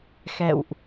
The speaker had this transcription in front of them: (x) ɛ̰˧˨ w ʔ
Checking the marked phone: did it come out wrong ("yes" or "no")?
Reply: no